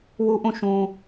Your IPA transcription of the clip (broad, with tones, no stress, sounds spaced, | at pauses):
w u˦ ʔ ũ˦˨ ʃ ũ˦